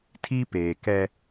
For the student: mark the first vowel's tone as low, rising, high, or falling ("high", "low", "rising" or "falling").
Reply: high